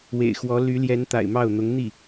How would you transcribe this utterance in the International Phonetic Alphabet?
wḛ˨˩ɪ̯xwɔ˧˥ ly˧˥ljɛ˧˥n t̪a̰˨˩ɪ̯mɑ˥˩ʊ̯n̪ʊ˧˥ŋ n̪i˥˩

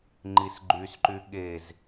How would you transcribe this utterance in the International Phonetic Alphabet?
ŋ͡ǃisɡ͡ǃysǃy ɠez

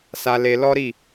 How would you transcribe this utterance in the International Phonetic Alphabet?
sa˧le˧lɔ˦ɾi˦˨

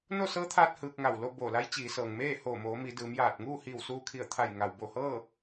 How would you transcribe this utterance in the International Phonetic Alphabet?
no˥˨sɤː˧˥t̪ʰaː˧t̚ hɯː˧k̚ŋa˧˩wlo˥˨ boː˧˩la˧˥j t͡ɕiː˩˧sɤː˩ŋ meː˥˨hoː˧˩moː˩˧ mi˩˧dɯː˩˧mjaː˧˩t̚ ŋuː˥˨hiː˧˩wsuː˧kʰi˧˩ə̯ t̪ʰa˧˩jŋa˩wbo˧˩hɤː˥˨

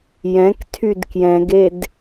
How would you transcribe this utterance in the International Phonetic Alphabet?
jɛ̃k tʰydkjɛ̃ɡed

